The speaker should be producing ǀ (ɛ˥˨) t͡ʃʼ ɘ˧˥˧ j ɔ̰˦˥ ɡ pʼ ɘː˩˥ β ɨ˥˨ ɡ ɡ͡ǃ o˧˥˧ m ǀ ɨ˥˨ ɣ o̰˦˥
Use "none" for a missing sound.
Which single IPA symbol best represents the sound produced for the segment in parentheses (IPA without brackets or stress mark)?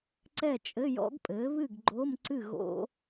ɛ˥˨